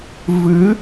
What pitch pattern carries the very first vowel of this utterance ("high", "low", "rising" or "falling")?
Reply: rising